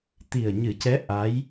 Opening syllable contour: low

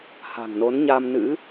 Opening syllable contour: low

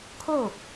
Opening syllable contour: falling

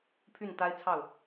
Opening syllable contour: falling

